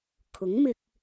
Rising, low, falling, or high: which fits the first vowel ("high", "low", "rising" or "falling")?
rising